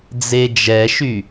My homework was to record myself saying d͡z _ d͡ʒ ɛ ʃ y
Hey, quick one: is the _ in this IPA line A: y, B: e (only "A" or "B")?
B